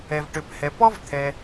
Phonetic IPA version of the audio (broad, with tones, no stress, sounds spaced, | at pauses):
ɛ˩ v ʈ ø˩ p h ɛ˩ p ɔ˥ v t̪ʰ ɛ˩